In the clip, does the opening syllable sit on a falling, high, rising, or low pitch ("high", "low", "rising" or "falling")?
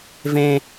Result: low